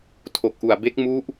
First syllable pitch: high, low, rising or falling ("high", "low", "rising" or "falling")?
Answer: low